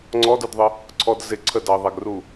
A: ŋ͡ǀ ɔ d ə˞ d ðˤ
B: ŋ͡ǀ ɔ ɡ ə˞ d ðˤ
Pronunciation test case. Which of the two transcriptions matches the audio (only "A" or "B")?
A